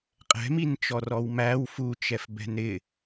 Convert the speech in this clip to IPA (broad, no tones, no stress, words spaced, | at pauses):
qʼɛ̤mint͡ʃɔ rɔwmæw fut͡ʃɛf bɛ̤nɾɪ